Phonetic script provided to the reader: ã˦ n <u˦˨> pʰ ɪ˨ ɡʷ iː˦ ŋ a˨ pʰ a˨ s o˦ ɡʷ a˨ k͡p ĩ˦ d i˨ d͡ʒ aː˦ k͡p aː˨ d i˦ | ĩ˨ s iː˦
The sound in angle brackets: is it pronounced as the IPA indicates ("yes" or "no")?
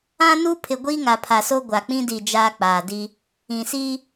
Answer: no